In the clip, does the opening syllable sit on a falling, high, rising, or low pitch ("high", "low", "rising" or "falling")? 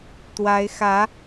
rising